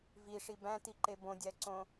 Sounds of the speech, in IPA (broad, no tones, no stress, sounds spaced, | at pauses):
v i ʂ i b æ̃ t i ǃ e b õ dʲ æ ǀ õ